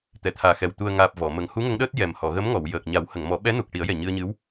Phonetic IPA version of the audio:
t̪ ɛ˨˩˨ t̪ʰ aː˨˩ x ɛ˨˩ w t̪ u˨˩ ə̯ ŋ aː˨˩ p̚ v ɔ˨˩˨ m ə˨˩˨ ŋ h u˧˥ ŋ ə˧˥ ŋ ɗ əː˦˥ t̚ j ɛ˨˩ m h ɔ˨˩˨ ɣ ə˧˥ m ŋ ɔ˨˩˨ w j əː˨˩ k̚ ɲ a˨˩˦ w h ə˨˩˨ ŋ m ɔ˨˩˦ ɓ ɛ˧˥ n u˨˩ k̚ ʈ i˨˩˦ ə̯ j ɛ˨˩ ɲ ɨ˧ ə̯ ɲ ɨ˧˥ w

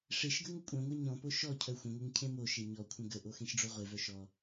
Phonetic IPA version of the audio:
ʂ e ʃ ɡ ə ŋ ə kʷʼ œ̃ ŋʷ e ɲ ɔ̃ p o ʃ ɔ cʰ œ xʷ ə̃ ŋʷ e ŋ cʰ ẽ m o ʃ e ɲ ɔ kʷʰ ə̃ ɡ ə ʔ o x ẽ ʃ ɖ͡ʐ o ʁʷ e v œ ʃ ɔ

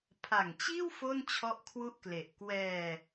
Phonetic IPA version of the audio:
pʰ a˨˩ ŋ t͡ɕ iː˥˩ w f o˥˩ n t͡ɕʰ ɔ˥˩ ʔ kʰ w u˥˩ ʔ k l e˨˩ ʔ k w ɛː˧

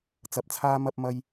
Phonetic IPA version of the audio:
t͡s ɐ˨˥ p̚ t͡sʰ aː˧ m ɐ˧ p̚ m ɐ˧ j

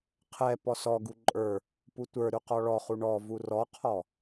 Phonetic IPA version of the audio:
qʰ ɛ p ɔ s ɔ ɡ u ǃʼ ə˞ | p u tʷ ə˞ ɾ ʉ q ɔ ɭ ɔ χ u ɳ ɔ v u r ɔ qʰ ɔ

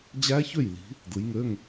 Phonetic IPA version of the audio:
d͡ʑ æ˦˥ ç ø˥˩ j l i̤˨˦ | d ɯ˨˦ j ŋ ø˧˥˧ ŋ

